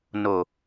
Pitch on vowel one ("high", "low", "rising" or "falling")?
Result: low